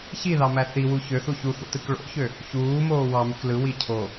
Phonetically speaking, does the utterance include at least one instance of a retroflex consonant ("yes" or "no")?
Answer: yes